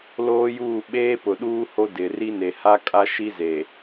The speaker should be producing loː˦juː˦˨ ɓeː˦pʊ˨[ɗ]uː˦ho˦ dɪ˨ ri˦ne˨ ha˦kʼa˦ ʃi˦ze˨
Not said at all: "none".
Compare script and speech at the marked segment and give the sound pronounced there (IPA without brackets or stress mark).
ɗ